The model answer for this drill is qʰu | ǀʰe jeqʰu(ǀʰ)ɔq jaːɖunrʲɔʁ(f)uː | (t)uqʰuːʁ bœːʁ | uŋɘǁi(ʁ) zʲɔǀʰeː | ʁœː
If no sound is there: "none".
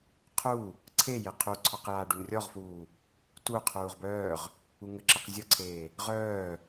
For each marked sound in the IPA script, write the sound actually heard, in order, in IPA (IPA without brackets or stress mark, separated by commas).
ǀʰ, f, t, q